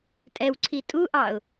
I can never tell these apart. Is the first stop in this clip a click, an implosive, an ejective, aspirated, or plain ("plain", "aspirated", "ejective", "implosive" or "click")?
ejective